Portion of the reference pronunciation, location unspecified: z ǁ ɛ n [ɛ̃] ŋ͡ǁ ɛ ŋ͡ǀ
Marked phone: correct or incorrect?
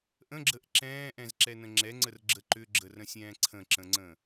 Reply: incorrect